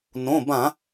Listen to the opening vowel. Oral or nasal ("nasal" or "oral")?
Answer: nasal